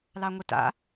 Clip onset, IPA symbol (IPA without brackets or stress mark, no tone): l